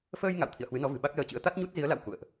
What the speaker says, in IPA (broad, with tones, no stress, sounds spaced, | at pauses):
f əː˧ j ŋ a̰˧˨ w t̪ʰ ḭ˧˨ ə̯ h w ɨ˨˦ n ɔ˨˦ v ɨ̤˨˩ ɓ a˦˥ k̚ l əː˧ t͡ɕ ɨ̰˧˥ ə̯ t̪ a˦˥ t̚ ɲ u˦˥ t̚ z i˨˦ ə̯ l a̰˧˨ w k ṵ˧˨ ə̯ ʔ